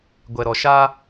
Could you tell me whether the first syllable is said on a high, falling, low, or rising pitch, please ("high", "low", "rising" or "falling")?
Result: low